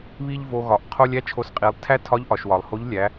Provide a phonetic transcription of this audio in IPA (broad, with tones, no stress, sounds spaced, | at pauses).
β i˥ ʎ v o˧ ɣ ɒ˩˧ ʔ qʰ o˧ lʲ æ˥ t͡ʃʰ o˧ s qʼ i˩˧ lˠ tʰ æ˥ tʰ ɒ˧˥ ʎ ʔ ɒ˩ ʃ w ɒ˩ lˠ h o˧˥ ʎ lʲ æ˩˧